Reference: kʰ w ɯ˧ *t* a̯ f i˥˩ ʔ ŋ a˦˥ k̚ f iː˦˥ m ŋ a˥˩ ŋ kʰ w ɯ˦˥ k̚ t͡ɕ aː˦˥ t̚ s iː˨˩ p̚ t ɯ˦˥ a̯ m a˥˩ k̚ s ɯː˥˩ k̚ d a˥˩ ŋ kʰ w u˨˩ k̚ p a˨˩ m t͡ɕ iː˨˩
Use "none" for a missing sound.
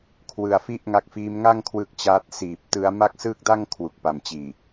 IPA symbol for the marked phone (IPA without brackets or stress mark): none